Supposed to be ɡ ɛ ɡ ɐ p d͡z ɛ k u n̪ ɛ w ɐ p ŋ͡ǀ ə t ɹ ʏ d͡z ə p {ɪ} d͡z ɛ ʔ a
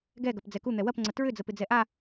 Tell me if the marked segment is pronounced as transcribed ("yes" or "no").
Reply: yes